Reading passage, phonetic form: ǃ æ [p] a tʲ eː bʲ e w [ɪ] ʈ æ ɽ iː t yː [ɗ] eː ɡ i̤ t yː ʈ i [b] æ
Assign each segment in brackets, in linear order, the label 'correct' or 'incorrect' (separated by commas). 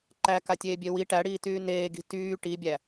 incorrect, incorrect, incorrect, incorrect